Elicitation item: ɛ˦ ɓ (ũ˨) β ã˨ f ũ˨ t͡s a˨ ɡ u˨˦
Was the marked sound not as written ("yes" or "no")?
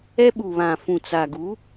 yes